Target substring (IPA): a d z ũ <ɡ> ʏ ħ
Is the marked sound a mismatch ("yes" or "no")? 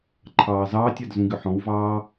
no